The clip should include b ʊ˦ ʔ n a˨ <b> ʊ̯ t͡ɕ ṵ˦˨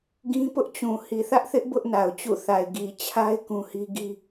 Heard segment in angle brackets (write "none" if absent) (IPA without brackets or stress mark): none